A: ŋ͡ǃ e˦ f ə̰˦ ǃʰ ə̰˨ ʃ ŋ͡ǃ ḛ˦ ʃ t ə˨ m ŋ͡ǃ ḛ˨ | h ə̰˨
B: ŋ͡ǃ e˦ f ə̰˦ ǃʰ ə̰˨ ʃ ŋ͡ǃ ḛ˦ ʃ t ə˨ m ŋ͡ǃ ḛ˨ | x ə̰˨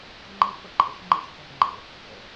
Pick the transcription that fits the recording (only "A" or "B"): A